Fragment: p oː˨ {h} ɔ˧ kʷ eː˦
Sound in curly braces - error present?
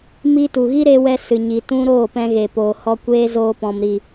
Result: no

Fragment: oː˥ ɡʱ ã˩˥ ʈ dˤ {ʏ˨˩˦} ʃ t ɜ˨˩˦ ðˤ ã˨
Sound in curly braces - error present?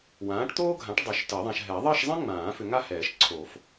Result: no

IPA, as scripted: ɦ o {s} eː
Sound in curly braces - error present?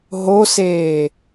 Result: no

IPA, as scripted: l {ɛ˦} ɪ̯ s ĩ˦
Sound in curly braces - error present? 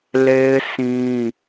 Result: yes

